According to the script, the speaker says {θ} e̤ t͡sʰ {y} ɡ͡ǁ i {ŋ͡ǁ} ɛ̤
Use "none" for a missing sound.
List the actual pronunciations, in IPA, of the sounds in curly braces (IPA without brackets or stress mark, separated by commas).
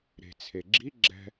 ɾ, e, ɡ͡ǁ